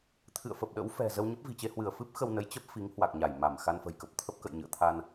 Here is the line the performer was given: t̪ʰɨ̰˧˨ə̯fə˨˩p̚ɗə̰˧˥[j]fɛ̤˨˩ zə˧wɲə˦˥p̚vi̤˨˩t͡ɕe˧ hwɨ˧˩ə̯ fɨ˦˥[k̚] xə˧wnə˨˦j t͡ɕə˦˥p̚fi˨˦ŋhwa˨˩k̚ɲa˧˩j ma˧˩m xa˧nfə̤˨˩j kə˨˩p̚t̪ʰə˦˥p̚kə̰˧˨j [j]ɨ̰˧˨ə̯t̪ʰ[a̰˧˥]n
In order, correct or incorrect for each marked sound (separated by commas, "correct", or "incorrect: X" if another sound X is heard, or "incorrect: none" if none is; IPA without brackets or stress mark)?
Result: incorrect: w, incorrect: p̚, incorrect: ɲ, incorrect: a˧